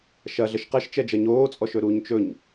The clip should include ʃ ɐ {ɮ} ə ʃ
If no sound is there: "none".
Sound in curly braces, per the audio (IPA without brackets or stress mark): ɮ